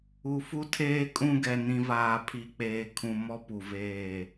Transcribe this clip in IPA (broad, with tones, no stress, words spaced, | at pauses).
u˨fu˦tʰeː˦kʼũ˦ ɡɛ˨nĩ˨vaː˨ pʰi˨k͡peː˨kʰũ˨ mɔ˦pu˨veː˦˨